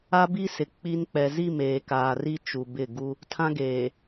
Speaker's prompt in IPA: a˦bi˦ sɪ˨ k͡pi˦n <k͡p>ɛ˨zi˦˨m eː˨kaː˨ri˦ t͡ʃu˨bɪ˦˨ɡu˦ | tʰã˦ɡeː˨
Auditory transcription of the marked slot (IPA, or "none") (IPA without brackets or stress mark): k͡p